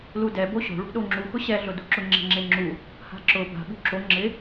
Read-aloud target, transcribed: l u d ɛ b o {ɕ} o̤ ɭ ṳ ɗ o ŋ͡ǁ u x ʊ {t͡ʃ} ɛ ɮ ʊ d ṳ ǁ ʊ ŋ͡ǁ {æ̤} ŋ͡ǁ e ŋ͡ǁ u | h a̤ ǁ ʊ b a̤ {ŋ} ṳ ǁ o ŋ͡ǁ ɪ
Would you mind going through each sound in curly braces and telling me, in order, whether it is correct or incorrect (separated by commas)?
correct, incorrect, incorrect, incorrect